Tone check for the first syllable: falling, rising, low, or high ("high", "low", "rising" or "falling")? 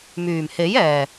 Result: low